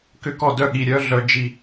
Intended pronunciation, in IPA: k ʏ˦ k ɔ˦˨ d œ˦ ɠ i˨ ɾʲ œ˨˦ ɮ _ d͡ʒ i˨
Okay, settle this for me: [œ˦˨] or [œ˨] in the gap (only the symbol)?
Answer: œ˨